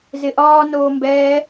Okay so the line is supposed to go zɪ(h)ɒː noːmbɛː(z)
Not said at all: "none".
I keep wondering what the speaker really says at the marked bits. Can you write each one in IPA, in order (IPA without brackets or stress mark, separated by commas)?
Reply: ʔ, none